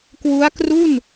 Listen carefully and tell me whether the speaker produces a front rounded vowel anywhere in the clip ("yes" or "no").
no